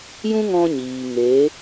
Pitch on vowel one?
high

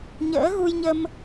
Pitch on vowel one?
rising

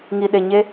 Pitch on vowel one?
low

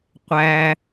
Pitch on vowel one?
high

